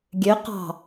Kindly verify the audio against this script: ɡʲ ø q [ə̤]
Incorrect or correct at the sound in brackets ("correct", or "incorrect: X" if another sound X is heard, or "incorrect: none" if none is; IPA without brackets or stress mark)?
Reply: incorrect: ɑ̤